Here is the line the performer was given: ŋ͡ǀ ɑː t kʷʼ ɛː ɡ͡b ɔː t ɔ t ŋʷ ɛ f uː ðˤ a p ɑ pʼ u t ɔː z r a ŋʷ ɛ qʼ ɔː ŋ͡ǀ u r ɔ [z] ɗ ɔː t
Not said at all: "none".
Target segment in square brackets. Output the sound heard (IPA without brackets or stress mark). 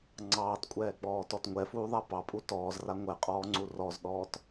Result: z